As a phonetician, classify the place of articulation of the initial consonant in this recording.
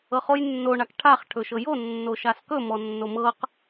uvular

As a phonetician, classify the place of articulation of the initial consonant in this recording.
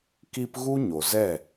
velar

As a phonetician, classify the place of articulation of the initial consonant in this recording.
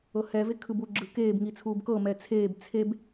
glottal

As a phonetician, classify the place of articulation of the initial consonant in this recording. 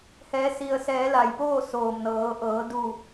glottal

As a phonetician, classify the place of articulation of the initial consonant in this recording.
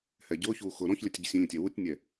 glottal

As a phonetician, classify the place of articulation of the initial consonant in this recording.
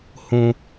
glottal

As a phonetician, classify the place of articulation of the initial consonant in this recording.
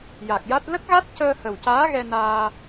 palatal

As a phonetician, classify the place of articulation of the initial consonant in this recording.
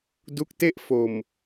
alveolar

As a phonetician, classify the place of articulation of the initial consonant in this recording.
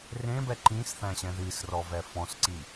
alveolar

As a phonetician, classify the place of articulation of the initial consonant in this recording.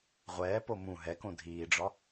uvular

